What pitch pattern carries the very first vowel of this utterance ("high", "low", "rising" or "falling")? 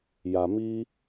low